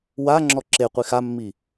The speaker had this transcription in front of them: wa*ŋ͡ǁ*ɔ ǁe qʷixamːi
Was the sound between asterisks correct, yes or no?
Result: yes